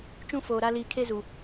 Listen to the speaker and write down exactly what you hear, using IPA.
t͡ʃũ˦foː˨ɾa˦ liː˨kʰe˦ zu˨

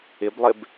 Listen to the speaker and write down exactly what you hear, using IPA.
ɪblˠɪb

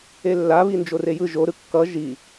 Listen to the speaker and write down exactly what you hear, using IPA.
elːa βind͡ʒorejɯ ʒo ɾɯkːʌ ʒi

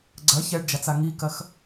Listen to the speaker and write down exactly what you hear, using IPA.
ɡ͡ǀɐ çɛɖd͡ʒat͡sa ŋikɐx

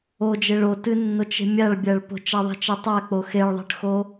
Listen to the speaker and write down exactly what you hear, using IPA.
od͡ʒeɭ o tɨnːot͡ʃe̤ mʲaɭbʲaɭ po̤t͡ʃaðˤi̤t͡ʃi tˤak͡po xeɭðˤe̤ʈxo

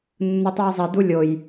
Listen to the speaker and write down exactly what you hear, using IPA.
nːɯtˤujzˤe dulʲoj

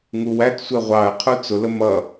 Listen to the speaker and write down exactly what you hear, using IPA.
ŋuwætsʷɛ ʁʷɑə̯ qʰut͡sʊlə mʌ

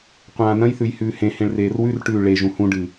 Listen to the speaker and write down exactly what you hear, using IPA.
qʷãːnɐ̃jθʉj hʉːhẽhẽɭ reːrwʉrʈʉː ɭeʒũ hũɖɨ

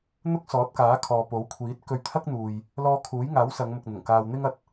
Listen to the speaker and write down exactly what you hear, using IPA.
n̪ʊ˥k̚sɔː˨˥t̚kaː˨˥ kʰɔː˨po˨˥w kʷʰiː˨˥t̚kɵ˧ɥt̪ʰɐ˥k̚n̪uː˨j | lɔː˧kʰuː˨˥jŋaː˨˥w sɐ˨˧ŋmʊ˨k̚n̪ʊ˨˩ŋ kaː˧wn̪ɪ˥ŋ ɐ˨t̚

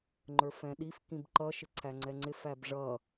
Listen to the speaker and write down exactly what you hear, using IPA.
ŋ͡ǃə˞fɛ̃ɗif kĩbǃʌ ʃɪǀʰæŋ͡ǀɛŋ͡ǀɪ fæbʐʌ

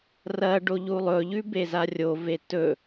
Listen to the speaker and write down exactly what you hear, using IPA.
rɐ ɖoʎulˠɵʎʉ bezarʲove tɵ

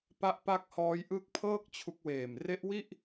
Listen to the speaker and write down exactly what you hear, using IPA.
pa˥˩ʔ pa˥˩k̚ hɔː˦˥jʔɯ˦˥k̚ pʰɤː˥˩k̚ t͡ɕʰu˦˥k̚ weː˨˩mre˦˥ʔwi˥˩ʔ

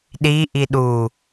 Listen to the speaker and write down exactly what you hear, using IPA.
ɗiʔi ɗu

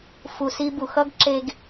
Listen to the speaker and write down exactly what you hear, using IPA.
fu˨si˧bu˨xʌ˦ɡ ǁe˧ɡ

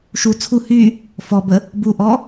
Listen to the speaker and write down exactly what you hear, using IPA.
ʃu t͡sʰu hy | fɔbə | buʔɔ

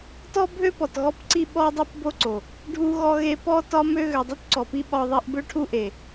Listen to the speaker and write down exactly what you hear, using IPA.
tɔ˦ bʱø˦pɔ˨t ɣɔ˦pǀi˦ ɓɔ˦dˤi˦pbo˦ǀo˨ | ɖʱu˦ɣɔ˦ɣe˦ pɔ˦tɒ˦mø˦ ɣø˨dˤu˦tǀɔ˨pi˦ ɓɒ˦ðˤi˦ʔ bø˦ʈʰu˦ʔe˨

